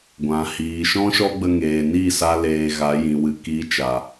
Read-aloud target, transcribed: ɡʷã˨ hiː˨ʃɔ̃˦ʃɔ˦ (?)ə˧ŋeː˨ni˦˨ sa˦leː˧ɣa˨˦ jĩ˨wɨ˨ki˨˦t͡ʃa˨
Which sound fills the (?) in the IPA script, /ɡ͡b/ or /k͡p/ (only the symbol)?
ɡ͡b